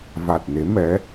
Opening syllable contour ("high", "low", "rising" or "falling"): low